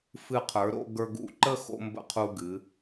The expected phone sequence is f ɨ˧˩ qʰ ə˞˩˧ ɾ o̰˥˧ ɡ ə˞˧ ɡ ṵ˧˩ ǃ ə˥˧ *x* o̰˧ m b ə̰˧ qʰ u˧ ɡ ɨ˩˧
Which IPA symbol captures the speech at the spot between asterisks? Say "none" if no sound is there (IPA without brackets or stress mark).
x